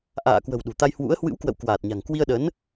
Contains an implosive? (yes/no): yes